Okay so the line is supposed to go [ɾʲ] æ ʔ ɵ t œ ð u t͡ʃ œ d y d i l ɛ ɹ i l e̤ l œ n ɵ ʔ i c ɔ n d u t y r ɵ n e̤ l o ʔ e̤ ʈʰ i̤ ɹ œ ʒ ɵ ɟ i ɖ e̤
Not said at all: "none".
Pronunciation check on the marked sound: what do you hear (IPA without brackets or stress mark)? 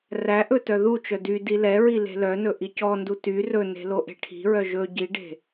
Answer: r